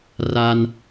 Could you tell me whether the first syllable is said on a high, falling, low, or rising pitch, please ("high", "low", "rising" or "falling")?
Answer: high